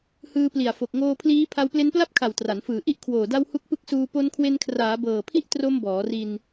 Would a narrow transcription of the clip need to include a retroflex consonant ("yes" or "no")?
no